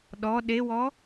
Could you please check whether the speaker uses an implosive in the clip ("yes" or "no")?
yes